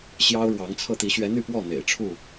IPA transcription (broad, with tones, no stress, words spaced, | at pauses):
ɕjɑ˦ʊ̯ɻwɑ˨˦ŋt͡sʰɤ˥˨ t̪i˨˦ɕɥɛ˨˦ n̪y˥˨pwɔ˥˨ n̪ḛ˨˩ɪ̯ʈ͡ʂʰu˥˨